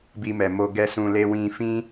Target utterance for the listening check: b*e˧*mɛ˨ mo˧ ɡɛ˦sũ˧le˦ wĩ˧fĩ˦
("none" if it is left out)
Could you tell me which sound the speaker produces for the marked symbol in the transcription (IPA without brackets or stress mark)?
i˧